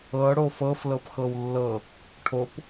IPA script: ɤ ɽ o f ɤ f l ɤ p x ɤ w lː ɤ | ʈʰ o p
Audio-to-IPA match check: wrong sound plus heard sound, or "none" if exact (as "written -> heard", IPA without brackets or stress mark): none